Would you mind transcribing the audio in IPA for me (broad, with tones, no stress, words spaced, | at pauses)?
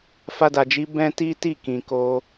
fa˧da˨d͡ʒi˨˦ bɛ̃˦ti˦ti˦˨ kĩ˨ko˧